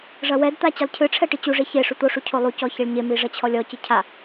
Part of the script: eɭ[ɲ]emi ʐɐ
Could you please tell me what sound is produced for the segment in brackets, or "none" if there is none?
ɲ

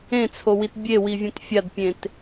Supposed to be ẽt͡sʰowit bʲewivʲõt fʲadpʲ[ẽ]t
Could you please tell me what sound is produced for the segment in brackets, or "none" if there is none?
ẽ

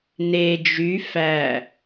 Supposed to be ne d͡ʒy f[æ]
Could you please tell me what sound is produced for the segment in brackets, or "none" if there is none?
æ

